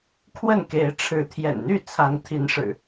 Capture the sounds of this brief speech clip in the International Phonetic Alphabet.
kʰ w ə˥˨ n k e˨˦ ɪ̯ ʈ͡ʂʰ ɻ̩˨˦ t̪ʰ j ɛ̰˨˩ n n̪ y˥˨ t͡sʰ a˨˦ n t̪ʰ i˨˦ n ʂ ɻ̩˨˩

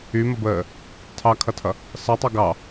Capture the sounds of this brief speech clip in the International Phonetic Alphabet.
y m ə b əː | tʰ ɑ kʰ ʌ tʰ ʌ | s ʌ tˤ o ɡ ɑ

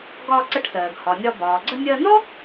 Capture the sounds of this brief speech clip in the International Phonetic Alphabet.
ɡ ɒː˧ ǀ ə˧ ʈ s ɜː˩ ɡ h ɒ˩ nʲ ɒ˧ b ɒː˩ ɡ͡ǀ ə˧ nʲ ɜ˧ n ɔ˥

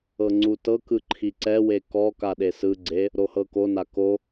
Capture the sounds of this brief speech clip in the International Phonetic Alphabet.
ɤ ŋ͡ǀ u t ɤ k ɯ ǃʰ i ǀ ɛ w e k ɔ k a ɗ e s ɯ ɡ͡ǀ e | ɾ o h ɤ k o n a k o

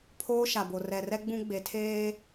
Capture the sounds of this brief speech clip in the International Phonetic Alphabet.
pʰ oː˦ ʃ a˨ b o˨ r ɛ˨ r ɛ˦ ɡ͡b ũ˦ ɡ͡b e˨ tʰ eː˦

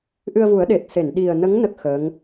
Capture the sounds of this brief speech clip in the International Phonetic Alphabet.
ʔ ɨ˧ ə̯ v u˨˩˦ ə̯ ɗ e˨˩ t̚ s e˨˩˨ n ɗ i˨˩ ə̯ n ə˧˥ ŋ n ə˦˥ k̚ x əː˧˥ ŋ

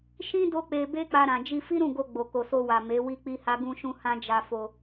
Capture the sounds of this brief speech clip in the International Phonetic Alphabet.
ʃ ĩ˦ d o˦ k͡p e˧ b e˦ k͡p a˧ ɾ ã˨ d͡ʒ i˧ f i˦ ɾ ũ˦˨ ɡ o˧ ɡ͡b o˨ k o˨ s o˧ w a˨ m e˨˦ w i˦ k͡p i˦ h a˦ ɡ ũ˧ ʃ ũ˧ h ã˦ d͡ʒ a˧ f o˧

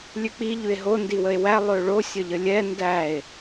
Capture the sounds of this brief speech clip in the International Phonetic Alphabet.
lʲ ʉ k͡p i ʎ ʉ e̯ ɦ o n d i w ə e̯ w æ lˠ ø ɭ o sʲ ə ʎ ə lʲ ɛ n d æ e̯

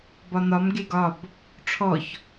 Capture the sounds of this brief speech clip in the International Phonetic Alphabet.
b ɒ n ɒ m ɡ e ɡ ɒ b | ʈ͡ʂʰ ɔ ç

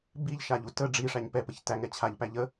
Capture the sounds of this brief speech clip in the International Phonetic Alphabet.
b i ʎ ʃ a ʎ u t ə ɖ͡ʐ i ʂ æ ɲ p ɛ p ə ç t æ ŋ ɛ t͡ɕʰ a ʎ p æ ʎ ə

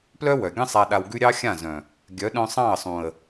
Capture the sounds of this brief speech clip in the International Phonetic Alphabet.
p l œ˦ w œ˨ ɡʲ ə̃˦ sˤ a˧ ɗ a˧ w ɡ ʉ˦ ɾʲ ɑ˦ xʲ ã˦˨ z œ̃˨ | ɡʲ œ˨˦ ɗ œ̃˧ sˤ ɑ̃˦˨ ə̯ sˤ ũ˨ ə̯

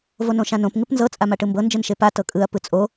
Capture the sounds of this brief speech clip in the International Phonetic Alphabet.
v o n õ ʃ ã n õ p ŋ ɯ p n z ɤ t͡sʼ a m a ʈ ɯ m b ɤ n d͡ʒ ɯ n ʃ e p a t ɤ kʼ ɯ ɐ̯ p ɯ t͡sʼ o

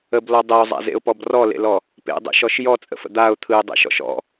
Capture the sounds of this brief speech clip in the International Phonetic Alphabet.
ə b l ɔ dˤ e ʊ̯ zˤ a̰ z ḛ ʊ̯ p ɔ b r ɔ l ḛ l ɔ | p ḛ dˤ ḛ ʃ ɔ ʃ j ɔ t͡sʼ ə̰ f ə̰ d̪ a ʊ̯ t̪ʰ ɯ ɪ̯ dˤ ḛ ʃ ɔ̰ ʃ ɔ̰

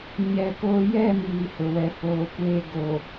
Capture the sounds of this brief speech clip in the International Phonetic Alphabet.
ɲ ɛ˨ k oː˦ j ɛ˦˨ m iː˨ h ʊ˨ w ɛ˨ f oː˨ kʷ eː˦ ɡ o˨

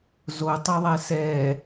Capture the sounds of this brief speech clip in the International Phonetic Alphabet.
z o tˤ e ðˤ ɛ s ɛ

